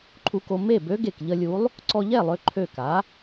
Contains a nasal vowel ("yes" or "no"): no